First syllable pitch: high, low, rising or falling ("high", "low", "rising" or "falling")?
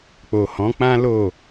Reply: low